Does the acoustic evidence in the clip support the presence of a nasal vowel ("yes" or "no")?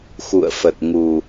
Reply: no